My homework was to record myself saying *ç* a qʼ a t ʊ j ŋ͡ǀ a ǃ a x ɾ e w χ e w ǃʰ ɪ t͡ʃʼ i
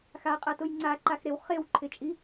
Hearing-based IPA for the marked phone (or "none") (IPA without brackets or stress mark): x